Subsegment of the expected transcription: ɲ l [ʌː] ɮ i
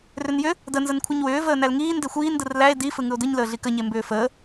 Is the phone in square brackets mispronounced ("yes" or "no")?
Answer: yes